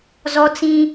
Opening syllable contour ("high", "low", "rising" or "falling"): high